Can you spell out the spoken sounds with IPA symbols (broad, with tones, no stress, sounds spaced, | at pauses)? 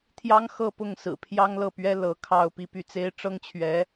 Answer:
t̪ʰ j ɑ˥ ŋ x ɤ˥˧ p ʊ˥˩ ŋ s ɹ̩˨˩ pʰ j ɑ˥ ŋ l ɤ˥˩ p ɥ ɛ˥ l ɤ˧˥ kʰ ɑ˥˧ ʊ̯ p i˥˧ p y˥˩ t͡s e˥ ɪ̯ ʈ͡ʂ ɤ˥ ŋ t͡ɕʰ ɥ ɛ˧˥